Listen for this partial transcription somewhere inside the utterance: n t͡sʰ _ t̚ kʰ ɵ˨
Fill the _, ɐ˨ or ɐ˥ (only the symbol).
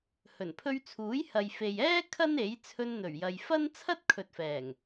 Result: ɐ˥